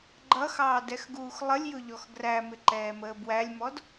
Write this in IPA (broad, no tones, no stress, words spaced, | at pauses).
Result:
ɡ͡ǃʌxɑːdɛxɡuːx lˠəlʲjʊʎɔx ɡræmɪǃɛːməː bwælʲmɔd